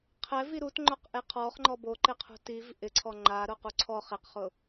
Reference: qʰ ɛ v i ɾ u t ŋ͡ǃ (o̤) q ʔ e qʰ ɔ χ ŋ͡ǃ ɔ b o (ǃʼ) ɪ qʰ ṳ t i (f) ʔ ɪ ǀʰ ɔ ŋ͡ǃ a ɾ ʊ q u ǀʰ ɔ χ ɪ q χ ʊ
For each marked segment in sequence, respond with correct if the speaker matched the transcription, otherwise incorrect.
incorrect: o, incorrect: ǃ, incorrect: v

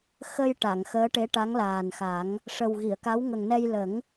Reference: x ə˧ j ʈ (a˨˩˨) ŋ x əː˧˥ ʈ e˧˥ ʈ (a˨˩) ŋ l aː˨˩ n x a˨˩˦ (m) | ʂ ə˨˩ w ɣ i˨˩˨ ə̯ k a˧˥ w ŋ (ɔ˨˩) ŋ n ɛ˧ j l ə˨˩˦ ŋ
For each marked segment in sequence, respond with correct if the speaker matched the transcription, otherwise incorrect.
correct, incorrect: a˧˥, incorrect: ŋ, incorrect: ə˨˩

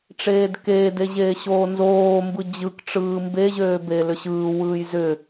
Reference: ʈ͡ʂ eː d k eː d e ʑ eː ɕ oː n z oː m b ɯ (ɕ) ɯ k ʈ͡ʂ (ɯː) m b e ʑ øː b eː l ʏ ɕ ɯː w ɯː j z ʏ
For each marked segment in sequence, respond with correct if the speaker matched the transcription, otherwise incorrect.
incorrect: d͡ʑ, correct

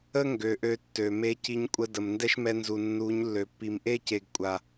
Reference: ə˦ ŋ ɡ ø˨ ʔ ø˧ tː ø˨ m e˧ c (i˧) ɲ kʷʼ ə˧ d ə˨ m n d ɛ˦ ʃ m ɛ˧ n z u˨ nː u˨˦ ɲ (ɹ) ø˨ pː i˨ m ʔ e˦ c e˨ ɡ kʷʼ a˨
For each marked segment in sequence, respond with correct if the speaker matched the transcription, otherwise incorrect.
correct, incorrect: lː

